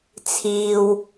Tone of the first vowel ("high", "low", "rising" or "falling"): low